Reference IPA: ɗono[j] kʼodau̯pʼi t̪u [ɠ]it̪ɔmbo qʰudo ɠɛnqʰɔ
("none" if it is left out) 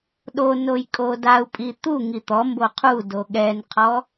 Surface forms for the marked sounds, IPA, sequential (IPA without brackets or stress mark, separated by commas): j, ŋ